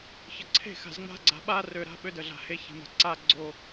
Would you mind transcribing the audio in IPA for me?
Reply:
ç ə˨ ǀʰ e̤˦˨ x a̤˨ z ŋ͡m a̤˦ ɡ͡ǀ a̤˨ ɓ a˦ r ø˨ ɾ a̤˦ ɓ ø˦ d ə˨ ɮ a̤˨ h e˦ ç e̤˨ m a̤˨ ǀ a˦˨ ɡ͡ǀ o˦˨

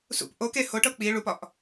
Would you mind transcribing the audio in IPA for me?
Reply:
s ṵ p ʔ o k e h o ʈ ɤ k͡p i ɭ u p ɒ ʔ

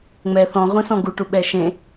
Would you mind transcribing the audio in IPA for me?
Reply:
ŋ͡m ɛ θ ɔ̃ ʁʷ ĩ s ɔ̃ ɡ u ʈ u ɓ ɛ ʃ ẽ

